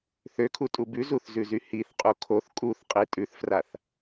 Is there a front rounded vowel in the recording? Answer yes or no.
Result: yes